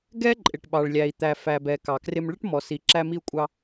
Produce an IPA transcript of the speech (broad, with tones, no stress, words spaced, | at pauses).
ɡɛ˥ǃʼɪ˩ʈ ɓɑ˩ɭlʲæ˩i̯ t̪æ˩fæ˩bɛ˩ kɑ˩krɪ˧m ɭə˥ʈmɔ˩si˩ ǁæ˧mi˧u̯kʷʼɑ˧